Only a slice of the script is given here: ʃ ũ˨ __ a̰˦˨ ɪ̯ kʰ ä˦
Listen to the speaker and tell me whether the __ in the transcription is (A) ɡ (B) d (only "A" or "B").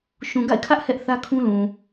A